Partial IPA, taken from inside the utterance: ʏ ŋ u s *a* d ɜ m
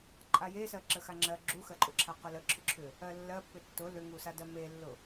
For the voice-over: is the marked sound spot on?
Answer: yes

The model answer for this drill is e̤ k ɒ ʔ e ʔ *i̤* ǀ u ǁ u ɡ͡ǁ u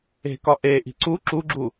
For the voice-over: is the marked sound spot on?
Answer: yes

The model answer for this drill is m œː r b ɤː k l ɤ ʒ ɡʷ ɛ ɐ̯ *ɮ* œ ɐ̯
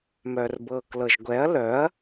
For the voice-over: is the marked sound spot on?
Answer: no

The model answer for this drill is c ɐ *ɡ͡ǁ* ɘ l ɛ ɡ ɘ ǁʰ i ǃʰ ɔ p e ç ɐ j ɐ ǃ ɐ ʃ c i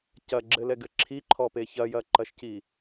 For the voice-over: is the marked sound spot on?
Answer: yes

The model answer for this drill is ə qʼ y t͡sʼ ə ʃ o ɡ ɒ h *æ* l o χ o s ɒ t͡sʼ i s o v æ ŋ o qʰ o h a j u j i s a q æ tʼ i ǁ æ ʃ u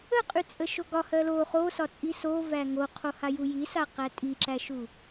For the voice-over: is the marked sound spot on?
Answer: no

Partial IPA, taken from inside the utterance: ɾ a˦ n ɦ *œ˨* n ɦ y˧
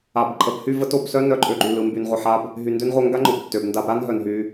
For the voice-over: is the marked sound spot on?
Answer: yes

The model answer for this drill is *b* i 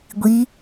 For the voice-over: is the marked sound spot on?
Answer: no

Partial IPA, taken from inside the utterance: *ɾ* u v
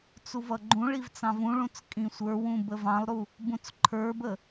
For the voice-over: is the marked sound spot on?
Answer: no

